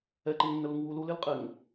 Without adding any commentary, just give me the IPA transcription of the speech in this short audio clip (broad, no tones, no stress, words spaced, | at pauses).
ɛǃeŋnːəluŋ wul ulɪlqʼeŋ